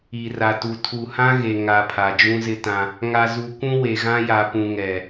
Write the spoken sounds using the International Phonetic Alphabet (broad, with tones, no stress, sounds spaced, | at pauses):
i˨ r a˨ t u˨ tʰ u˨ h ã˦ ɣ e˨ ŋ a˨ pʰ a˨ d͡ʒ ũ˦ z ɪ˦ t ã˦ | ŋ a˨ z u˨ kʷ ũ˦ w e˨ ɣ ã˦ j a˨ p ũ˨ ŋ ɛ˨